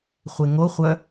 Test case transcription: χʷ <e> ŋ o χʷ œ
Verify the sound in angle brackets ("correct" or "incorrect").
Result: correct